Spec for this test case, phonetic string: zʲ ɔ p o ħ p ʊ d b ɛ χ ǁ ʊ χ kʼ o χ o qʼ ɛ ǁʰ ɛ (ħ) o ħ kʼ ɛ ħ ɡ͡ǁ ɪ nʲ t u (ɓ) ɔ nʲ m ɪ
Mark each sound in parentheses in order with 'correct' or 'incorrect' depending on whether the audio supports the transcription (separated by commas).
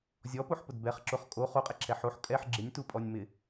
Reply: correct, incorrect